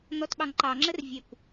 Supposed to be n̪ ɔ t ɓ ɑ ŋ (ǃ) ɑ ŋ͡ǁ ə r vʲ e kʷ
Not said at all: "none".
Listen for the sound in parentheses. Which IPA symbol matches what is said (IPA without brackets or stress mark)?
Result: ǃ